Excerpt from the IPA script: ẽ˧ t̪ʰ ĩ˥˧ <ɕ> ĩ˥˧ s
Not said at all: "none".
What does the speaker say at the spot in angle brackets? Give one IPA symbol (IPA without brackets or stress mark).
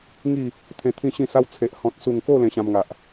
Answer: ɕ